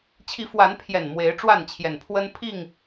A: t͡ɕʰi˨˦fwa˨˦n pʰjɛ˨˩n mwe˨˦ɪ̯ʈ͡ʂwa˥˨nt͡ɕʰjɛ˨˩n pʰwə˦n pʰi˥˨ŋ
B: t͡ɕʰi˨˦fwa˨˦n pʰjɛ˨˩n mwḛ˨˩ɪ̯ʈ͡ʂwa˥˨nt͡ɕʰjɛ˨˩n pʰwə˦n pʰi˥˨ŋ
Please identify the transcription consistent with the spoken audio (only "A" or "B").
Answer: A